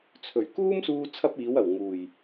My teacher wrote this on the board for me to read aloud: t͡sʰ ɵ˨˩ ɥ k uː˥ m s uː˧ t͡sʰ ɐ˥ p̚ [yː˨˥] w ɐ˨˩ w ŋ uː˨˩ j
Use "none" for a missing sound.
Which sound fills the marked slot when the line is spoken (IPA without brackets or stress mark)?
iː˨˥